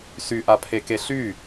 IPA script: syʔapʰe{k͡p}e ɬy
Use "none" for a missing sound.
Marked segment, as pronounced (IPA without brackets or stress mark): k